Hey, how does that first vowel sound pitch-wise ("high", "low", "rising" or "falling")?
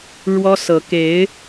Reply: high